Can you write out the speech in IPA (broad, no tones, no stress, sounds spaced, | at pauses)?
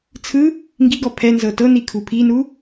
t͡sʰ ɯ | ŋ ɡ i ɡ ɔ pʰ ɛ n z ɤ t ɤ n i kʰ u pʰ i n u